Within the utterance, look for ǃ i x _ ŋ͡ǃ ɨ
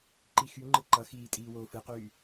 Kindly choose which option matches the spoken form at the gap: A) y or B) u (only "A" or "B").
A